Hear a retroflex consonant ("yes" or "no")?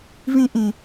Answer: no